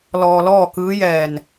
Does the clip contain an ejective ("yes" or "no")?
no